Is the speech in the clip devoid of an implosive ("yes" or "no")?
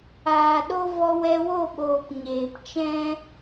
no